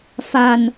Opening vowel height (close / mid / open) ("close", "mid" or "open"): open